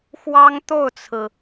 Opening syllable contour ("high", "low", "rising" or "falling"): high